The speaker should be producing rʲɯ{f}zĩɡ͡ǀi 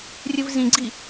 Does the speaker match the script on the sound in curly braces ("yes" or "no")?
no